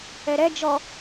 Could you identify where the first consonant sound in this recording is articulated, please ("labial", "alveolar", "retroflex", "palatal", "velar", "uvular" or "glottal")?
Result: alveolar